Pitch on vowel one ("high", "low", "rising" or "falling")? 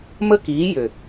high